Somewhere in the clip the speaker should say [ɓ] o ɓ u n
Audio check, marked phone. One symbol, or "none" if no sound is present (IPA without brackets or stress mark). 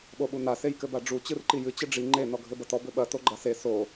ɓ